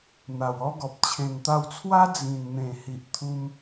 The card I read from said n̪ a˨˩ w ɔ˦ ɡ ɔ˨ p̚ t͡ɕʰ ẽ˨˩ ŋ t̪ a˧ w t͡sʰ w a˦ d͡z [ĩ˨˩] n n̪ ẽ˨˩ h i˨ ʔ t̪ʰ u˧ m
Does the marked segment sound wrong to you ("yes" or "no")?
no